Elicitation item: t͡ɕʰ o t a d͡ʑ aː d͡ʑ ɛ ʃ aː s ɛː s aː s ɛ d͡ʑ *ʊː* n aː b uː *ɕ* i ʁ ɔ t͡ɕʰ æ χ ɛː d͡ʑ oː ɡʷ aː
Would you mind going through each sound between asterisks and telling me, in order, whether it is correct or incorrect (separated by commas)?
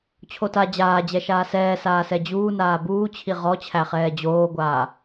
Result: incorrect, incorrect